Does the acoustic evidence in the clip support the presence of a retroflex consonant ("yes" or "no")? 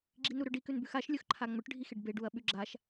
yes